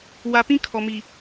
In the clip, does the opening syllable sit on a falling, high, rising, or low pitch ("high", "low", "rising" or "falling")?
low